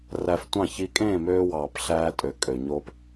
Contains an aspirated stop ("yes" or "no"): no